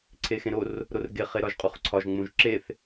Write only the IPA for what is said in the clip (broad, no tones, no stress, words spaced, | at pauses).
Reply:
ǀʰexẽɾor | ɾorɡe χeɾɒʒqʼuχǀʰɒʒ ŋ͡mũʒǁeθ